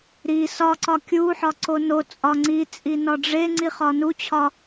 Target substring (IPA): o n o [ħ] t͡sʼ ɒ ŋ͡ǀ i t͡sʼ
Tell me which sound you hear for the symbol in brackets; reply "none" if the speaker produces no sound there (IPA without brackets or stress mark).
none